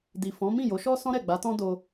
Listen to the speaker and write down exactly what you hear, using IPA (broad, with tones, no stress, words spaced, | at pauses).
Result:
di˨ fɔ̃˨˦ mĩ˦˨jo˨˦ʃɔ˦ sɔ̃˦ɾɛ˦˨ɡ͡ba˨˦tɔ̃˦ do˧